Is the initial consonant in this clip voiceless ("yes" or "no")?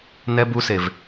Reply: no